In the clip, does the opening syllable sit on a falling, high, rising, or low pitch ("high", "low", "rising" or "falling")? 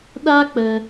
high